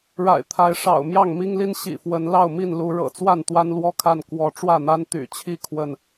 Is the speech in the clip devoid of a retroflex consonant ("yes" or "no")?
no